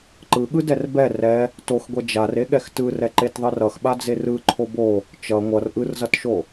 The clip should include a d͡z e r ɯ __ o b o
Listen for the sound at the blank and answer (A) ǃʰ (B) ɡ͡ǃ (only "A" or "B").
A